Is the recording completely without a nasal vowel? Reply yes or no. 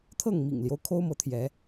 yes